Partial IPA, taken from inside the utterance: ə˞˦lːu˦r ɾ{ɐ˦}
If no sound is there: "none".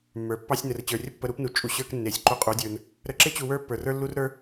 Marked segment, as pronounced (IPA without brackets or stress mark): ə˞˦